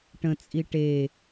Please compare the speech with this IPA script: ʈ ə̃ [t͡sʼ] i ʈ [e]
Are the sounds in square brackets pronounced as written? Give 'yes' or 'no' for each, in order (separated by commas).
yes, yes